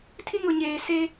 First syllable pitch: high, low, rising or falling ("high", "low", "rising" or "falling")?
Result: high